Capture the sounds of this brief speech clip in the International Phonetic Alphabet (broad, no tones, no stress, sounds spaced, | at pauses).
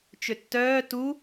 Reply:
t͡ʃ ø tː œː t u